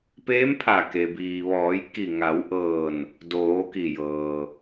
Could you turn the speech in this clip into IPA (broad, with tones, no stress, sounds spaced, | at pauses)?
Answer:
p eː˧˥ m pʰ a˧˩ k e˩ b iː˩ ʋ ɔː˩˧ j k i˧˩ ŋ a˩˧ w ʔ ɤː˧˩ n | d oː˩˧ k i˧˩ j ɤː˩